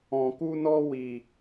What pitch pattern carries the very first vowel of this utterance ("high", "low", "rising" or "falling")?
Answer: low